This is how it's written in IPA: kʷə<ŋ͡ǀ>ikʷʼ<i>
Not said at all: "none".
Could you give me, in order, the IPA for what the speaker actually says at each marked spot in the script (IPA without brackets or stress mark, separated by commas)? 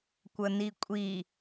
n, i